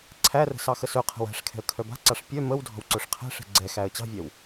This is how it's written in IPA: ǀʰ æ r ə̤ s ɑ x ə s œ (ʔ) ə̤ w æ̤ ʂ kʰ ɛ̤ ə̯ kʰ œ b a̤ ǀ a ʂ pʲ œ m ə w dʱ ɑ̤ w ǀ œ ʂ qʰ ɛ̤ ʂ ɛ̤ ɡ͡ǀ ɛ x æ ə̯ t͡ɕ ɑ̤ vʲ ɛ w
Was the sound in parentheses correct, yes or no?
no